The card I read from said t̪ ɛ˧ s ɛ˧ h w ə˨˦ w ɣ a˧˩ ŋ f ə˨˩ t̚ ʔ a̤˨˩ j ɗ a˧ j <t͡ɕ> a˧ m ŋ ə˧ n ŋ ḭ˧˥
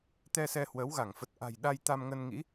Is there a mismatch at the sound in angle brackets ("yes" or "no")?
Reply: yes